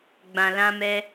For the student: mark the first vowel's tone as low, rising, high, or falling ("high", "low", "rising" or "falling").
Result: low